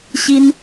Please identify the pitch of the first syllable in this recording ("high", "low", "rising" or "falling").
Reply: high